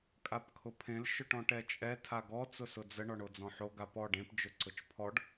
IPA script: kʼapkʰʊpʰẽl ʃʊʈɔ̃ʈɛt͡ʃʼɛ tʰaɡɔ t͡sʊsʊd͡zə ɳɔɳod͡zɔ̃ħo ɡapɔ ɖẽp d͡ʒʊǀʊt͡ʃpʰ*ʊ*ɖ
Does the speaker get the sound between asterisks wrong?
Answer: yes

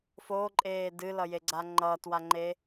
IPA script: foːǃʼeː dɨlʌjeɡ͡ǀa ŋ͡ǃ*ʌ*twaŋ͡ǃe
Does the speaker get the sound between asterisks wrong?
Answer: yes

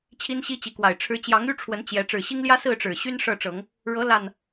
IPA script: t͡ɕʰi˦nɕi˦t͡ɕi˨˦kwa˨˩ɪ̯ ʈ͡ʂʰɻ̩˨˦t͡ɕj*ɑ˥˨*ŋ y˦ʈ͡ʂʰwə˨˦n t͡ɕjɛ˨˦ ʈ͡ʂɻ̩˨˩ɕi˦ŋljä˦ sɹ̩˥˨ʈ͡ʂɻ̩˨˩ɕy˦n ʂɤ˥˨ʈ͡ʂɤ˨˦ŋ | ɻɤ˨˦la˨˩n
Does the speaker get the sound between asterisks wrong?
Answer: yes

